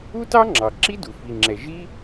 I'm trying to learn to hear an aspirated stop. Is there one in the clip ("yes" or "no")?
no